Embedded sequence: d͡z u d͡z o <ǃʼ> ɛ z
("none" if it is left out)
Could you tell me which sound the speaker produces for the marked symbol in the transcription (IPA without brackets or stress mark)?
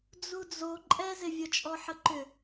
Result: ǃʼ